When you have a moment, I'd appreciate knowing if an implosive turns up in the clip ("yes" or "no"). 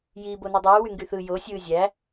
no